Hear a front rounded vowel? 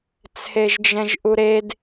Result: no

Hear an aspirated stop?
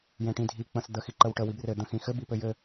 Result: no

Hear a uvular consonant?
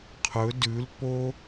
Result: yes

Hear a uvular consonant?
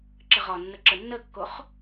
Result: yes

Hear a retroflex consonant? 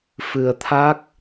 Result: no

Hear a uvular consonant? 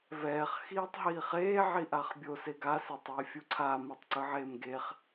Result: yes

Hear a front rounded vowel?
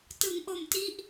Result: no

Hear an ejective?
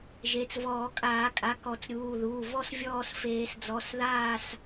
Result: yes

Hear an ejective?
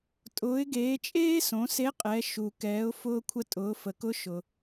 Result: yes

